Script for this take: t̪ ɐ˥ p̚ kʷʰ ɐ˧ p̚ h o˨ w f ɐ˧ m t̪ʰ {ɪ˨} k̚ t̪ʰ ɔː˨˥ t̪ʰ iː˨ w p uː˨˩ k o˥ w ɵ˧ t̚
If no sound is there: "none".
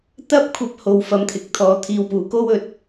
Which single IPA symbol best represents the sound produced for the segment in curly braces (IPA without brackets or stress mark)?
ɪ˨